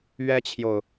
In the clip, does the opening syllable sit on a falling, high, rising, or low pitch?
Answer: high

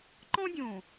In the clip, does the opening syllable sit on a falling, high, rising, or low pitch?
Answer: high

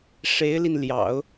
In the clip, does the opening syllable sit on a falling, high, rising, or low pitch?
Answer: rising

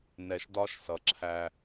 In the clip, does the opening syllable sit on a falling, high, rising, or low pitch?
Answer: low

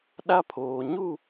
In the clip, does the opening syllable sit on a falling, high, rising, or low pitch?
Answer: high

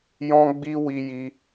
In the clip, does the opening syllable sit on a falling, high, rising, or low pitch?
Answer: high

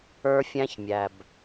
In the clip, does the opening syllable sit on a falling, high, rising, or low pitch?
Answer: high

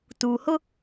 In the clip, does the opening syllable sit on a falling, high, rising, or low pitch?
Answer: low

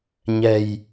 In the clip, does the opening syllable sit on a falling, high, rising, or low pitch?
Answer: low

